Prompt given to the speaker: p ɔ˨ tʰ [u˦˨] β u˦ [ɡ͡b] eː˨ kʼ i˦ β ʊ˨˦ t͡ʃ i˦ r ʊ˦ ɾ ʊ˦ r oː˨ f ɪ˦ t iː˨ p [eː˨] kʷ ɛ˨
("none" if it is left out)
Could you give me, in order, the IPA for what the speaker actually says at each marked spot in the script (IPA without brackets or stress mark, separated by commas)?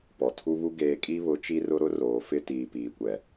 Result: u˦, ɡ, iː˨